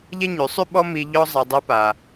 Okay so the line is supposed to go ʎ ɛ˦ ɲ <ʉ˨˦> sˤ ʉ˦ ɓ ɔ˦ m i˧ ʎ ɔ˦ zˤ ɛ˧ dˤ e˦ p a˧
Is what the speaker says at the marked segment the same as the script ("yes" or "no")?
yes